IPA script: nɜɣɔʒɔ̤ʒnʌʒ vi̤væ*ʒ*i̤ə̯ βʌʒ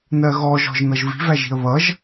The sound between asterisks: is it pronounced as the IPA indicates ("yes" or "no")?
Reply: yes